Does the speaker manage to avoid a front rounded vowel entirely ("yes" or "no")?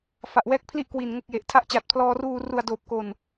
yes